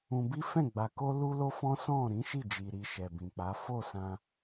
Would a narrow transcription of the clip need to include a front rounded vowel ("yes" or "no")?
no